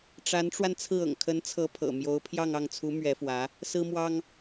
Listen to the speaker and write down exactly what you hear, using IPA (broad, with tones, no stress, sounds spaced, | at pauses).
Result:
ʈ͡ʂ a˧˥ n ʈ͡ʂ w a˧ n t͡sʰ ɹ̩˥˩ ɤ̰˨˩ ŋ kʰ ə˧˥ n t͡sʰ ɤ˧˥ pʰ ɤ̰˨˩ m j o˧˥ ʊ̯ pʰ j ɑ˥˧ ŋ ɑ˥˩ ŋ t͡sʰ u˧˥ m ɥ ɛ˧˥ f w ä˧˥ | s ɹ̩˥ m w ɑ˥ ŋ